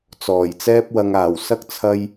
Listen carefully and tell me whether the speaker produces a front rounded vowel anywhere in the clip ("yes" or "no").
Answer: no